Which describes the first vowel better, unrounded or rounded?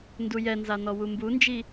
rounded